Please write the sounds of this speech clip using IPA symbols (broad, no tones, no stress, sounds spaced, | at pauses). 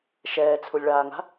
ʃ ɛː t͡sʰ u lʲ ɭ aː ŋ a̤